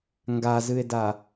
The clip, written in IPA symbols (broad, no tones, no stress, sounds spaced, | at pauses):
ŋ ɡ a z ɨ e̯ d a